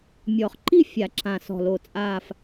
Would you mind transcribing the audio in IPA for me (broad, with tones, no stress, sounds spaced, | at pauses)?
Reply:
mʲ ɔ˨˩˦ χ ǃ i˥˧ fʲ a˨˩˦ ǁ ã˧˩ s ɔ̤˧˩ l o˧˩ t͡sʼ aː˥˧ f